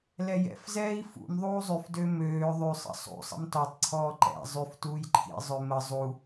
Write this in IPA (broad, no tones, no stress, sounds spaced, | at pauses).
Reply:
l ɛ j ɛ̰ f z ɛː i̯ f ṵ m ðˤ uː zˤ y f d ø m øː ðˤ y sˤ ə̰ sˤ ṵ sˤ ə̰ m t ɔ tˤ ǀʰ ɔː ǃ ɛ̰ zˤ y f t uː j ǃʰ ḭ zˤ ø m ə zˤ u